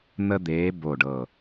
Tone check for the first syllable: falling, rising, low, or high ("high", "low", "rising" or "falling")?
high